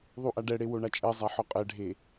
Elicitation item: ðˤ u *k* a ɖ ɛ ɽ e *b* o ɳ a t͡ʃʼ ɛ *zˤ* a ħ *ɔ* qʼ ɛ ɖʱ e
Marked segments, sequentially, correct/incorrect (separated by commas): incorrect, incorrect, correct, correct